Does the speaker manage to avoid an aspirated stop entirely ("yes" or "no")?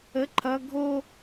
no